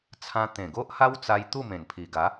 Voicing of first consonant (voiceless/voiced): voiceless